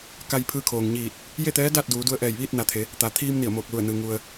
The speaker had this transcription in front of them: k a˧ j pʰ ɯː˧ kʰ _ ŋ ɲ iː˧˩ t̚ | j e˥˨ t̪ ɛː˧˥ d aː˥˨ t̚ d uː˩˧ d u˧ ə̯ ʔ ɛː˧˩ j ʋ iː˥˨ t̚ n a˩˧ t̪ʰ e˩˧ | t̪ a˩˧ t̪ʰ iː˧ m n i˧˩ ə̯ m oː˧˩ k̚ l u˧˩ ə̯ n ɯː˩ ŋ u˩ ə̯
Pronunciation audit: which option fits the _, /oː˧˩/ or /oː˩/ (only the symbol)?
oː˩